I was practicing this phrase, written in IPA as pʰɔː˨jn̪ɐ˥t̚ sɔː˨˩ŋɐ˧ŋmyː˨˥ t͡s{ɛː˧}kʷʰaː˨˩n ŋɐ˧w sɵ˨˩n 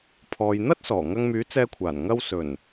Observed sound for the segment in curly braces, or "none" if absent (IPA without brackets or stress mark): ɛː˧